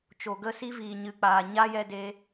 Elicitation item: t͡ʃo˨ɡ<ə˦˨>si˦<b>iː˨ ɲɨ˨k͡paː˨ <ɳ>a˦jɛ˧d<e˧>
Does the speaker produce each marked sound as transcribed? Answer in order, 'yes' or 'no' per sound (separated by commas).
yes, no, no, yes